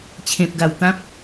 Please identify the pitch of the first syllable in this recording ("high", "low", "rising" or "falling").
low